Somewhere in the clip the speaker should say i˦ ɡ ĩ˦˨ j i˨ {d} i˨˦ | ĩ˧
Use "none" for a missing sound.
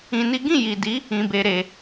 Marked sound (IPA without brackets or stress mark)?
d